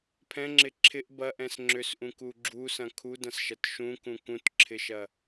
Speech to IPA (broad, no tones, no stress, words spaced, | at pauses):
pʰɛ̃ŋ͡ǁɪ ǁʰɪʔ bɐʔɛ̃s ŋ͡ǁʏsʔũku ɡ͡ǁusɐ̃ kʰudɐ̃sʃɐt ʃũkũ kũtǁʰɪʃɐ